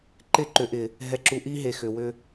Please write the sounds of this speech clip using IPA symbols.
ǃ ɪ˦˨ ǃ ʏ˨ ʔ ɪ˨ | ɦ ɛ˨ ǁ u˨ ʔ i˦ ɦ e˨ x ʏ˨ w ʏ˦

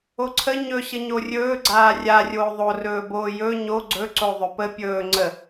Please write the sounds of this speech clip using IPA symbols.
o ǀʰ ə ɲ ɵ ɕ ə ɲ o rʲ ɵː ɡ͡ǀ aː rʲ a rʲ oː ðˤ o r ɵː b oː j ɵ ɲ o ɡ͡ǀ ɵ ǀ o ðˤ ɵ p ə pʲ ɵː ŋ͡ǀ ə

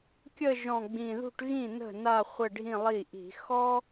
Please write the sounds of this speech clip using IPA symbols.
kʲ ə˥˧ ʒ ɔ̃˨˩ ɡ͡b ĩ˨˩ ð ṳ˥˧ ʈ ɣ ĩ˥˩ n ə̤˥˩ n a˥˧ χʷ ɘ˥˧ ɖʱ ĩ˥˧ lˠ i˥˩ ʔ i̤˧˩˧ x ɔ˥

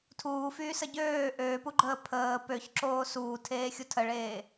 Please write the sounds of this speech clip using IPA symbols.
tʰ uː f yː s ə ɟ øː ʔ øː p u ɡ͡ǃ əː pʰ əː p ø ç ǁ oː s uː tʰ eː xʲ u tʰ ə ɭ eː

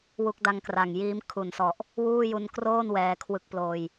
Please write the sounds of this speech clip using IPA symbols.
w u˦˥ k̚ d a˦˥ ŋ k r a˨˩ ŋ j iː˦˥ m kʰ u˨˩ n s ɔ˨˩ ʔ | w uː˥˩ j u˧ n k r oː˥˩ n w ɛː˧ kʰ w ɯ˦˥ k̚ p l oː˧ j

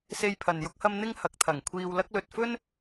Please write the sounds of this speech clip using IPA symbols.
s e˧ j pʰ ɐ˨ n j ʊ˥ k̚ h ɐ˥ m n̪ ɪ˥ ŋ h ɐ˨˥ k̚ t̪ʰ ɐ˨˩ ŋ kʷʰ iː˧ w l ɐ˥ k̚ l ɵ˧ t̚ f ɵ˥ n

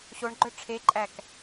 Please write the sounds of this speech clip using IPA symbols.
ɕ o ɳ ɡ͡ǃ œ ʈ͡ʂʰ e ǃʼ æ k

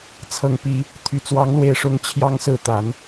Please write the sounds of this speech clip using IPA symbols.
t͡sʰ ɤ˨˩ ŋ p i˨˦ | t̪ʰ y˨˩ t͡s w ɑ˨˦ ŋ l w e˨˩ ɪ̯ ʂ ʊ˨˦ ŋ t͡ɕʰ j ɑ˨˦ ŋ s ɹ̩˨˩ t̪ a˨˦ n

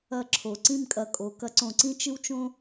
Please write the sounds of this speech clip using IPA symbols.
ɐ˥˩ ǁʰ o˩˧ ǀ ĩ˥˩ m kʼ ɐ˨˩ kʼ o˩˧ k ɐ˧˥ ǀ õ˩˧ ǀ ĩ˥ t͡ʃ ɨ˥ w t͡ʃ õ˥

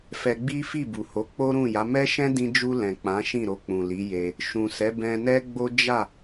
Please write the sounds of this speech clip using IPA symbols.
f ɛ˧ ɡ͡b i˦ f i˦˨ b u˨ h o˨˦ k͡p o˦ ɾ ũ˦˨ j a˨˦ m ɛ˦ ʃ ɛ̃˦ d ĩ˧ d͡ʒ u˧ l ɛ̃˨ k͡p ã˨˦ ʃ ĩ˦˨ ɾ o˧ k͡p ũ˨ l i˨˦ j e˧ | ʃ ũ˨ s ɛ˨˦ b ɛ̃˧ n ɛ˦ ɡ͡b o˦ d͡ʒ a˦˨

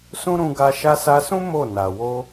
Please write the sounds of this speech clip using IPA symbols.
s ũ˦ ɾ ũ˧ ɡ a˧ ʃ a˧ s a˧ s ũ˦ m o˦˨ n a˨ w o˧

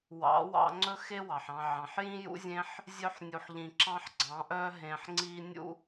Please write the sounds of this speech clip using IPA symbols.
w ɑ̰˨˦ w ɑ̰˧ ŋ͡ǀ ɵ˦ x e˦ w ɑ˨ ħ ɑ̃˧ ʕ ɑ̃˨ ħ j ĩ˦ j ṵ˦ zʲ ẽ˦ ħ | zʲ œ˦ ħ nʲ u˧ ħ ʎ ĩ˧ ǁ ɑ̃˦ ħ ɡ͡ǀ ɑ̃˨˦ ʔ œ˦ ɦ ẽ˧ ħ ŋ͡ǀ i˦ nʲ ṵ˦

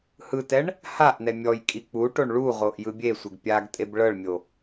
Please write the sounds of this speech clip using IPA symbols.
h ɯ t ɛ ɳ | h a ʔ n ɛ mʲ ɔ j kʼ i k͡p u ʈ o ɳ ɭ u ʁ o ʔ j ɯ bʲ e sʷ e ɡ pʲ a ɡ tʼ e b ɭ ɤ ɭ mʲ o

